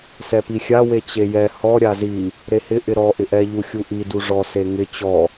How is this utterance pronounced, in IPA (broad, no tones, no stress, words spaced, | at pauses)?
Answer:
sɛpixʲa wet͡ɕejɛ hɔ ɾʲazi | ɾehɪ ʔɪɾɔ ʔɪʔɛ ʎuxʲuʔi duʐɔ seŋɪ t͡ɕɔ